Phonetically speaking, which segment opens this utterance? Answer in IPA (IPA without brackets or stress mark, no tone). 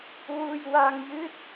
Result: w